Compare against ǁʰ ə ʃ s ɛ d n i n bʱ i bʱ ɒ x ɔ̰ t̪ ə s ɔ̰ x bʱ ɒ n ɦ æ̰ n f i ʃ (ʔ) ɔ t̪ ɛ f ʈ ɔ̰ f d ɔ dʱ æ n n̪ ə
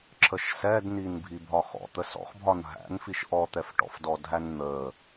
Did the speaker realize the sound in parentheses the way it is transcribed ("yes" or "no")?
yes